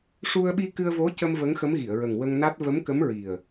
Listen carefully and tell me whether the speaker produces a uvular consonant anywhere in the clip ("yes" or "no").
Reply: no